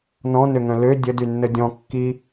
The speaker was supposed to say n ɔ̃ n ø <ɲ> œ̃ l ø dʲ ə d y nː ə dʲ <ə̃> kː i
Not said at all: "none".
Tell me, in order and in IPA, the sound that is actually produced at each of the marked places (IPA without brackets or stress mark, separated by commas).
ŋ, ɔ̃